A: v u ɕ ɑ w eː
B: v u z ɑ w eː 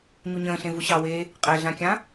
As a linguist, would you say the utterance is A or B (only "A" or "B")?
A